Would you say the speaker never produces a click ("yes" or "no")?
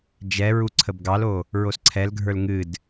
no